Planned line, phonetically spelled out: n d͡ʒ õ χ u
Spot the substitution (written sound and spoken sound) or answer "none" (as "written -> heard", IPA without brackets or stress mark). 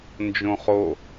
u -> o